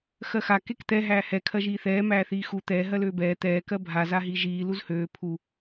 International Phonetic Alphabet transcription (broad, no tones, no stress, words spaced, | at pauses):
xɜxa kekt̪ɛ ɦæːhɛ kʰɜʒiːθɛː mæːθiːxu t̪ɛː ɦɜløːbɛː t̪ɛː kɜbʱa zaɦiʒiː luzhøː pʰu